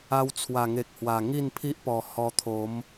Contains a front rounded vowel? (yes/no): no